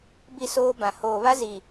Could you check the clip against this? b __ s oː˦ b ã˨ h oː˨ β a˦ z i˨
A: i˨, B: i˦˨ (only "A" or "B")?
B